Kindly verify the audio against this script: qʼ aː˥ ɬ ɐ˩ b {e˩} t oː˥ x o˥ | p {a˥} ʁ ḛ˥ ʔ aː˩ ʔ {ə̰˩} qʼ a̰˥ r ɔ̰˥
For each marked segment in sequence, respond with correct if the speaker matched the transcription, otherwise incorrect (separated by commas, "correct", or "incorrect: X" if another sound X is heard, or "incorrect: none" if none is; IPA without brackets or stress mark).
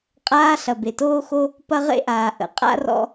correct, incorrect: ɐ˥, correct